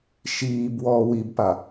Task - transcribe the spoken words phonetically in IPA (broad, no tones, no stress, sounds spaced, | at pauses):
ʃ iː b w ɔː w i b p a